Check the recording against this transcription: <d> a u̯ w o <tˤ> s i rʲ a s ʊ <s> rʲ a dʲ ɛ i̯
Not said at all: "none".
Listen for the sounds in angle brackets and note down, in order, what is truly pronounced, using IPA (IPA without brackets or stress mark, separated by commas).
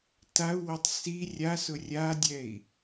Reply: t, tˤ, none